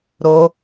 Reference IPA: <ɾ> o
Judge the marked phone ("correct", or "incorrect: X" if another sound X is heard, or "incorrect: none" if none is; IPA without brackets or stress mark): correct